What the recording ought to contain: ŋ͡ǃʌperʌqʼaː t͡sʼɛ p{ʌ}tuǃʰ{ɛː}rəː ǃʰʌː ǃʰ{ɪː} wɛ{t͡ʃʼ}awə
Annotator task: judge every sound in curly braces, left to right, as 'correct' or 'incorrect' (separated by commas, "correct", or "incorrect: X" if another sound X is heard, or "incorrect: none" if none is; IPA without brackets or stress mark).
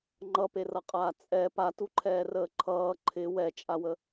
incorrect: a, correct, incorrect: ɪ, correct